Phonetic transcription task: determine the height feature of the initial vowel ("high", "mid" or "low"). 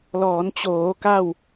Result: mid